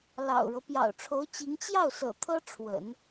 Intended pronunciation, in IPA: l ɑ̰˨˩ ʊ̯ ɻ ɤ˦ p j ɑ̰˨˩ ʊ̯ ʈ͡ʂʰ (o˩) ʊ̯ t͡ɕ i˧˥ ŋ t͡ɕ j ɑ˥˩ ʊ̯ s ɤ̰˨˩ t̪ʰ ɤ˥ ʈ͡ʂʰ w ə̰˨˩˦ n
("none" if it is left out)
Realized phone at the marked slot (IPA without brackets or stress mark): o˧˥